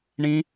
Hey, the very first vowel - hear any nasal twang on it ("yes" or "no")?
yes